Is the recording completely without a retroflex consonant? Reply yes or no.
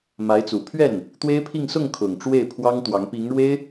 no